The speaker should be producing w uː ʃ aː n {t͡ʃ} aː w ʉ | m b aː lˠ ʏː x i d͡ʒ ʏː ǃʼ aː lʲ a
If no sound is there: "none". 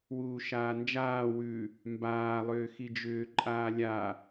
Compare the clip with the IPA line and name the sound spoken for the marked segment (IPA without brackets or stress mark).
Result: d͡ʒ